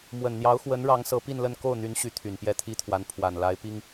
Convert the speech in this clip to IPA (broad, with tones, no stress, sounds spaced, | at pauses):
m w ə˨˩ n n̪ j ɑ˧˥ ʊ̯ x w ə˧˥ n ɻ ɑ˧˥ ŋ s ɤ˧˥ p i˥˧ n l ə˥˧ n k o˥˩ ʊ̯ n̪ y˧˥ n ɕ y˧˥ t̪ʰ y˨˩ n p j ɛ˥˩ t̪ʰ i˥ t̪ʰ w a˧˥ n pʰ w a˨˩ n l a˧˥ ɪ̯ p i˥ ŋ